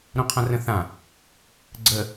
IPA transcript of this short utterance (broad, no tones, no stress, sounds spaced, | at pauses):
ɾ õ qʰ ã r ə̃ θ ã | ɡ͡ǀ ə